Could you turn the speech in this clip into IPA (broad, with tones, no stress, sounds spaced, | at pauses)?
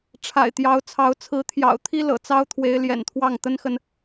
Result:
ʈ͡ʂʰ a̰˨˩ ɪ̯ t̪ j ɑ˨˦ ʊ̯ t͡sʰ ɑ˨˦ ʊ̯ t͡sʰ ɹ̩˨˦ t̪ʰ j ɑ̰˨˩ ʊ̯ t̪ʰ i˦ l ɤ̰˨˩ t͡s ɑ˦ ʊ̯ t̪ʰ w e˨˦ ɪ̯ l j ɛ̰˨˩ n t̪ʰ w ɑ˥˨ ŋ t̪ ə˦ n x ə˨ n